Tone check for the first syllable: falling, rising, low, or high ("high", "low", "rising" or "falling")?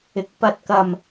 rising